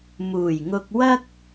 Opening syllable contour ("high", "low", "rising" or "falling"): low